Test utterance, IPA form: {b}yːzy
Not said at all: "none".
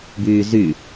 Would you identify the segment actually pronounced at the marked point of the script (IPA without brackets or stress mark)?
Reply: b